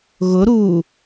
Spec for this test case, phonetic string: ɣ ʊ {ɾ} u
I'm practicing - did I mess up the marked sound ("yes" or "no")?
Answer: no